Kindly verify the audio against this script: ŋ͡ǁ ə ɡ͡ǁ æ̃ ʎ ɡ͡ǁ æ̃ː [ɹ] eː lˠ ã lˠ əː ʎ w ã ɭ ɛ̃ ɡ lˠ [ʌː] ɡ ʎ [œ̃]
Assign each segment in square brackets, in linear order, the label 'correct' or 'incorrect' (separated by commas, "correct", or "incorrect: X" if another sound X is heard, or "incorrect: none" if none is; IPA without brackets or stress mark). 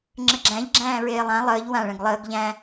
correct, incorrect: əː, incorrect: æ̃